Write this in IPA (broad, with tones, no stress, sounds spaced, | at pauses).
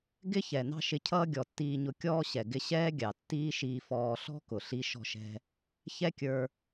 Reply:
ɡ ɪ˥ ç ɛ˩ n ɑ̤˥ ʃ ɪ˧ cʰ ʌː˥ ɡʲ ɔ˩ tː iː˧ ɲ ʊ˧ kʲ ɔː˥ ɕ ɛ˩ ɡ ɪ˧ ɕ ɛː˥ ɡʲ ɑ˩ tː iː˥ ʃ iː˧ f ɔː˧ ɬ ɔ̤˥ k ʊ˩ ɬ i˧ ʃ ɔ̤˧ ʃ ɛ̤˧ | ç ɛ˥ kʲ ə˞˧